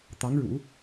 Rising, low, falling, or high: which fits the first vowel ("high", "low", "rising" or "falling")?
rising